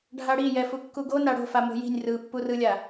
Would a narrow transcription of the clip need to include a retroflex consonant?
yes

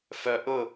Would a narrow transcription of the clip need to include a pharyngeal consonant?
no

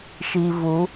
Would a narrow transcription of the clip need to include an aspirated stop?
no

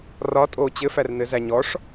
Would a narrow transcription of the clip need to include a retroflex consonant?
yes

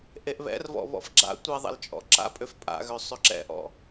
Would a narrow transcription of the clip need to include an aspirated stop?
no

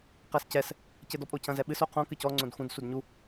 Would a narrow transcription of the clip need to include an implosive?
yes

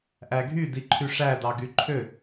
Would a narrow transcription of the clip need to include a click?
yes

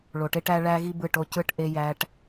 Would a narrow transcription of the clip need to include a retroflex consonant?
yes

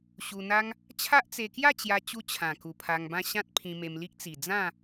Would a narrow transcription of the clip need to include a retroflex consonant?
no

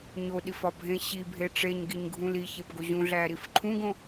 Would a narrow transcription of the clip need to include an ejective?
no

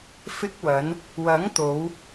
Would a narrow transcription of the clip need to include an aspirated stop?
no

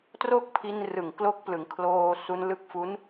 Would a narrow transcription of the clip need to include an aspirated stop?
yes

